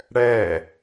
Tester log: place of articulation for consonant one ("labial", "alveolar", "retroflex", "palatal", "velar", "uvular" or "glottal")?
retroflex